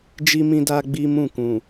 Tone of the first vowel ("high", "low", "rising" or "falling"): high